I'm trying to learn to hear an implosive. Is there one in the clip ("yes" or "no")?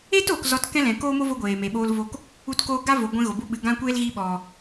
yes